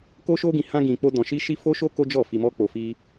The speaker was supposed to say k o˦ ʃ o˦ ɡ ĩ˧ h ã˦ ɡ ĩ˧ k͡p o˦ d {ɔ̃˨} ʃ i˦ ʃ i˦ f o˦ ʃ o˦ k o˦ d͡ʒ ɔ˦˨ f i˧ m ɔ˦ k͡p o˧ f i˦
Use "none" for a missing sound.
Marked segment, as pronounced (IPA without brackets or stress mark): ɔ̃˧